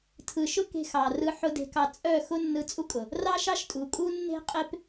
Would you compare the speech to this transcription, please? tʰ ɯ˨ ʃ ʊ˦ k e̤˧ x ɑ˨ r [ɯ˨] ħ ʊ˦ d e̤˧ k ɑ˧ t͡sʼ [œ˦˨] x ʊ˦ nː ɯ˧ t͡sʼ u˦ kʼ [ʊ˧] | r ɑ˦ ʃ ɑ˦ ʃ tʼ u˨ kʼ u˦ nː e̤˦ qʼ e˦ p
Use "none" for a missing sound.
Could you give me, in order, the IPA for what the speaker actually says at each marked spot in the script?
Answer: ɯ˧, œ˦˨, ʊ˨

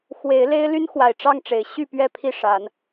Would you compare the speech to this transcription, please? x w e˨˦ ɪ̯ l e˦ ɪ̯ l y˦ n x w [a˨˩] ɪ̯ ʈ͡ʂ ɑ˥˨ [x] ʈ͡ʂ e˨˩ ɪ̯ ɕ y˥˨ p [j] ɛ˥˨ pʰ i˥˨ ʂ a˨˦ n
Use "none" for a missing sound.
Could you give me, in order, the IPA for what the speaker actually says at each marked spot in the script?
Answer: a˨˩, ŋ, ɥ

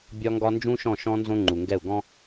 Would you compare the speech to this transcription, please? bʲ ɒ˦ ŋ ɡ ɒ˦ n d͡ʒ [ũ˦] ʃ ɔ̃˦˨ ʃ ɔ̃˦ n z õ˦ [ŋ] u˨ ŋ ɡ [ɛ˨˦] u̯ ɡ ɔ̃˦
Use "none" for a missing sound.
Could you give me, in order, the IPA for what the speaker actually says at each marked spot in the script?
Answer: ũ˦, ŋ͡ǃ, ɛ˦˨

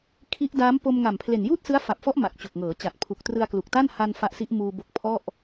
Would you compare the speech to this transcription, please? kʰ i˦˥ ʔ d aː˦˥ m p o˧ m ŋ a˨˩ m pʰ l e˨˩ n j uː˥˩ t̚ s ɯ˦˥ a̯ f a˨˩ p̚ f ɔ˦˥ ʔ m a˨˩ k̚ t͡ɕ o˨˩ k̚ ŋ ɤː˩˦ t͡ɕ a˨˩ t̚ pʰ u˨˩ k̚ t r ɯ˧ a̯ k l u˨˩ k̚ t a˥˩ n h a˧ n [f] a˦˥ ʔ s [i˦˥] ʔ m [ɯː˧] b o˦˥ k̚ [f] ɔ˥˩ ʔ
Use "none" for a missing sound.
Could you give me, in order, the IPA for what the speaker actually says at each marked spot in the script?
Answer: f, i˦˥, uː˧, pʰ

